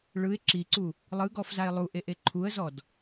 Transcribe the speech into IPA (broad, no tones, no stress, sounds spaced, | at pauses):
ɭ ɯ ɪ̯ ǁ i ǀ u | lˠ ɯ ɡ ɔ f z a ɪ̯ lˠ u ʔ e ʔ e ǃʰ u ə̯ z ɔ d